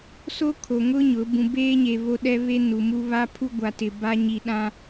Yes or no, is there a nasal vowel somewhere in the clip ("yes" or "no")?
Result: yes